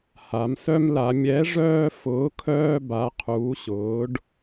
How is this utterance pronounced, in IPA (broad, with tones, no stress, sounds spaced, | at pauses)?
h a˩˧ m s œ˦ m l a˩˧ mʲ ɛ˨˥ ʐ œː˦ f ʊː˨˥ kʰ œː˦ b a˨˥ qʰ uː˨˥ ɕ ʊː˨˥ ɖ